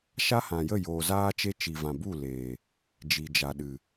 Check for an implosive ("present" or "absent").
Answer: present